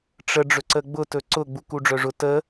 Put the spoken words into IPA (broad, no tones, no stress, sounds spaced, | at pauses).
ʈ͡ʂ ə ɖ͡ʐ ɵ ǀ ə ɡ͡b ʊ t ɵ ǀ ʊ ɡ͡b u k u ɖ͡ʐ œ ʐ ʊ t ə